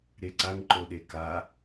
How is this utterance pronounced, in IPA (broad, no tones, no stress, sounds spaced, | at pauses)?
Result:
ɾ e ǀ a ŋ ǃ o ɗ e k a